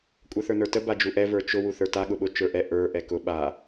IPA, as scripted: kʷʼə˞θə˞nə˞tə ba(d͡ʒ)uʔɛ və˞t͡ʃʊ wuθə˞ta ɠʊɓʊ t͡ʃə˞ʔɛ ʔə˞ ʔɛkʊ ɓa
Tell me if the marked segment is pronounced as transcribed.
yes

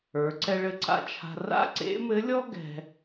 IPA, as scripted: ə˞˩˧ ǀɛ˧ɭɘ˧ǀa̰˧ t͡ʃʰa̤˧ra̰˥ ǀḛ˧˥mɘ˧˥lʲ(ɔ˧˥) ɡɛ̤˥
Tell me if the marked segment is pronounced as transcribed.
no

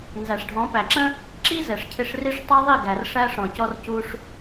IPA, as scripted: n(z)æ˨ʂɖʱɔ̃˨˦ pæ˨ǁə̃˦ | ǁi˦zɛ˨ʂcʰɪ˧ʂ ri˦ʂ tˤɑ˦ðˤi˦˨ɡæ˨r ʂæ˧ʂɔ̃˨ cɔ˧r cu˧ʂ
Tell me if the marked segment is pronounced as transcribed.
yes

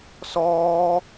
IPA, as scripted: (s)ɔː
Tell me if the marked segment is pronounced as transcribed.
yes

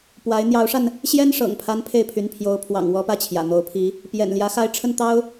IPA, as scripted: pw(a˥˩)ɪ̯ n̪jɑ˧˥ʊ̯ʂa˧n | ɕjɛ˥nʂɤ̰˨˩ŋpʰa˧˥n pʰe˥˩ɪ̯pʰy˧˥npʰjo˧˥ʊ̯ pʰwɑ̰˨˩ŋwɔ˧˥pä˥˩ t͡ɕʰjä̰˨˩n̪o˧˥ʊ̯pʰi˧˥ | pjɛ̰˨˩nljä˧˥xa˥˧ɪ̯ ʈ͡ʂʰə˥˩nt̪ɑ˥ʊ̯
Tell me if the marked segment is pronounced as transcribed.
no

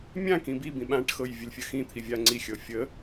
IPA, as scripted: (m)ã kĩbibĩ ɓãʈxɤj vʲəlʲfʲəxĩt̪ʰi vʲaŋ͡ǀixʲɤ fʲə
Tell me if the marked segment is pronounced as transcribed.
no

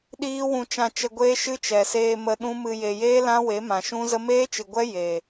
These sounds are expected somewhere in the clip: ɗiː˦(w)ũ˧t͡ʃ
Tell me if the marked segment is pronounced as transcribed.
yes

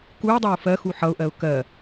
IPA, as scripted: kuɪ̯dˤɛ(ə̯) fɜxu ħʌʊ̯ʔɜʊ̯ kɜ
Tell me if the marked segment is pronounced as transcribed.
no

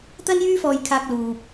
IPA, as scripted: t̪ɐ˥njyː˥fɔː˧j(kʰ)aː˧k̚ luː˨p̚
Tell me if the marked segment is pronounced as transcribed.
yes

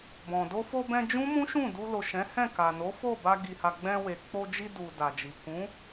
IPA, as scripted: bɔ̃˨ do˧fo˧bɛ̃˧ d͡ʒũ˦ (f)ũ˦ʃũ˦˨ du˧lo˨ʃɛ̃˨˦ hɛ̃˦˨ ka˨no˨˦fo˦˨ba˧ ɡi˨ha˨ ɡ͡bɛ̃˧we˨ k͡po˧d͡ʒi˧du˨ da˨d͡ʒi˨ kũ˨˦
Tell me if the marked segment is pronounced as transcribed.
no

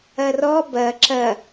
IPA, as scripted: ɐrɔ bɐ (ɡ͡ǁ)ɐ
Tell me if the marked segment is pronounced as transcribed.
no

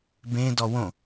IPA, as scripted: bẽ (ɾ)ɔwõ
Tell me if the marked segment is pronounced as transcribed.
no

